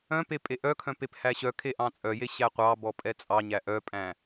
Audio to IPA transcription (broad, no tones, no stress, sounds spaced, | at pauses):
œ̃ p e pʼ e ʔ œ kʰ œ̃ p e p h æ ɕ œ kʰ e ʔ ɑ̃ t͡sʼ œ j e ɕ æ qʷ ɑ b ɔ pʼ ɛ t͡sʼ ɑ ɲ æ ʔ œ pʼ æ̃